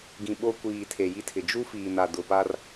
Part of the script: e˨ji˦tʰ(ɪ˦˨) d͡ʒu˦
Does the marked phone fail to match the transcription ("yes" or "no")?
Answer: yes